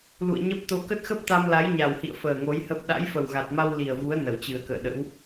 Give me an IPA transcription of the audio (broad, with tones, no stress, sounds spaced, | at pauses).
l ṵ˧˨ ə̯ ɲ ə˦˥ p̚ t̪ o˧ k ə˦˥ t̚ x ə˦˥ p̚ t̪ a˧ m l a˨˦ j ɲ a˨˩ w h ḭ˧˨ ə̯ f əː˨˩ ŋ o˨˦ j h ə˦˥ p̚ ɗ a̰˧˥ j f ə˨˩ w ɣ a˨˩ t̚ m a˧ w l i˨˩ ə̯ v u˨˦ ə̯ n ə˧˩ w t͡ɕ ɨ˨˩ ə̯ k ə̰ː˧˨ ɗ ə̰˧˥ w